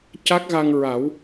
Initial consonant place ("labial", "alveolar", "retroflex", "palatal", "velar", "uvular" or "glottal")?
palatal